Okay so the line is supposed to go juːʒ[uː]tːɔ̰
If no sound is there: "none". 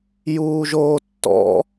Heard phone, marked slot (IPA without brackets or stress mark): oː